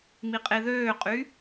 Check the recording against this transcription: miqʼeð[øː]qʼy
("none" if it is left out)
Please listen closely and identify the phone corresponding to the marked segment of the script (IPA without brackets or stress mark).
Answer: øː